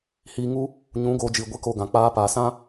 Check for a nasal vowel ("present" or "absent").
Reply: present